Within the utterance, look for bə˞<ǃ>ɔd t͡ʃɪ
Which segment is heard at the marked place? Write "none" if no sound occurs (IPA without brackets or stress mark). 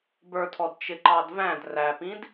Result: tʰ